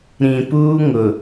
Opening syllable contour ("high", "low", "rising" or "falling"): low